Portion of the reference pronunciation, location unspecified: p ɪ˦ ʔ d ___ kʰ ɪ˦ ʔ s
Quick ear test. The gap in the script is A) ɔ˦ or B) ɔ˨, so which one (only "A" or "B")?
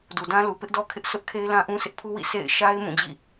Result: A